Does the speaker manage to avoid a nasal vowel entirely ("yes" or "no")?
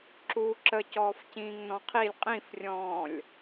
no